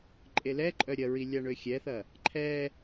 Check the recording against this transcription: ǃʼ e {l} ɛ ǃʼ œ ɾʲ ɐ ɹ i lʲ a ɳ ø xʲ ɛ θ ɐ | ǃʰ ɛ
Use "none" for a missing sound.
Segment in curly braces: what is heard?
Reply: l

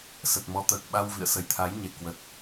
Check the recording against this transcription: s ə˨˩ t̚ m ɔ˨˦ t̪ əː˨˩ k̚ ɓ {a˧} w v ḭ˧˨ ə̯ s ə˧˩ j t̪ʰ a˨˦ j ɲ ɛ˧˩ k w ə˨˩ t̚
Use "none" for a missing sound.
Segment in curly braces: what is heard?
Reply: a˧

